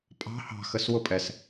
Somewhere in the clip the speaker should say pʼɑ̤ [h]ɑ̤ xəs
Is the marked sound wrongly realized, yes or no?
no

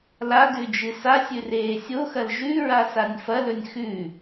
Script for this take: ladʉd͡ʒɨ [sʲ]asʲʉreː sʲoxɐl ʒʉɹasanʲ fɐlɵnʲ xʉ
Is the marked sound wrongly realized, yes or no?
yes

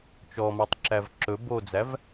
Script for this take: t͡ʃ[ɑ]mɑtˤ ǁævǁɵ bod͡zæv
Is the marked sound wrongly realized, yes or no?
yes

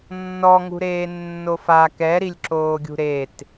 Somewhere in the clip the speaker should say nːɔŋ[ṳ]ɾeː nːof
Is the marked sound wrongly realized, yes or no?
no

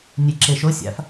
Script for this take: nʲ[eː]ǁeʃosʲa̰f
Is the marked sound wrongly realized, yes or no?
yes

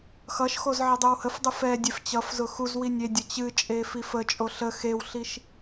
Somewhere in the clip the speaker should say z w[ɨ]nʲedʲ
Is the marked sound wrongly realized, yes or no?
yes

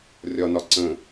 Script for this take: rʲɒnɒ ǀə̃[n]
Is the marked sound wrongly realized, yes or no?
yes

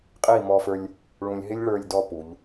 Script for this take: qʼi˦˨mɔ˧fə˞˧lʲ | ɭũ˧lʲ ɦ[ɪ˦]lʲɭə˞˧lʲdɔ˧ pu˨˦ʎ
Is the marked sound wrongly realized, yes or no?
no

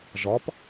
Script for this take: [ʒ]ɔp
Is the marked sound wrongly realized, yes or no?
no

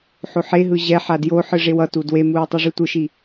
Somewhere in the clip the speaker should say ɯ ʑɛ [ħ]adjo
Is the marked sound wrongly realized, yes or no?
no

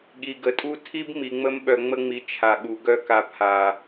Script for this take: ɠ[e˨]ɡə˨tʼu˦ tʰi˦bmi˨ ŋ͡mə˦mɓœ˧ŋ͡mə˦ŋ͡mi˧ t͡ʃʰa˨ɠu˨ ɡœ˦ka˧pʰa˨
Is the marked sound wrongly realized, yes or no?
yes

